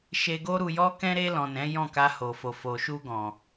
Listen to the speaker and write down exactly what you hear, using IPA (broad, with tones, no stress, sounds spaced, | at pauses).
ʃ e˧ ɡ o˦ ɾ u˧ j ɔ˦ k ɛ̃˦ ɾ e˧ l ɔ̃˨ n ɛ̃˨˦ j ɔ̃˦˨ k a˧ h o˨ f o˨ f o˨ ʃ u˧ ɡ ɔ̃˨